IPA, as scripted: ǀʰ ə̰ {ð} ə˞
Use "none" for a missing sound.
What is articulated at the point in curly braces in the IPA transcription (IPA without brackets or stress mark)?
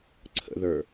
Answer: ð